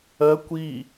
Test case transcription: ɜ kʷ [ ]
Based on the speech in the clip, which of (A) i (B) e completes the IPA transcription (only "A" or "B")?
A